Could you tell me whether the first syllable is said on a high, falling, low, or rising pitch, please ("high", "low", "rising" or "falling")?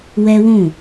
high